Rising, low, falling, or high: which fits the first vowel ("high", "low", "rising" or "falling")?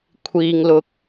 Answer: low